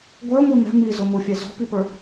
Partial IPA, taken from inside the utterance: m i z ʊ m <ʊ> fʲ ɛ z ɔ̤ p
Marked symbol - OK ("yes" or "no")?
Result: yes